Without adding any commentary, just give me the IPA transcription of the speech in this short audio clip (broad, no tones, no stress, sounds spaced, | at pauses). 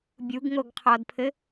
bʲ u ɡ ŋ o ɡ qʰ ɔ d pʰ ɘ